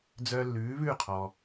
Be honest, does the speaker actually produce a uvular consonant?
yes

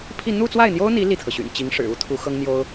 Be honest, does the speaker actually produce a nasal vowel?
no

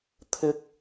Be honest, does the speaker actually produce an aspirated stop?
yes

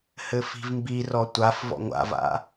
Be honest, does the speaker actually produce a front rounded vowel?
no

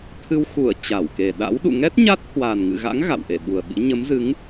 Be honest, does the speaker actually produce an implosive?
yes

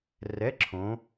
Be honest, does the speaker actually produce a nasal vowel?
yes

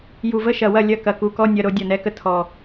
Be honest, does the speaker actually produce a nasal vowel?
no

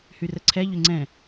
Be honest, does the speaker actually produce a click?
yes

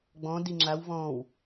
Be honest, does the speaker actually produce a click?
yes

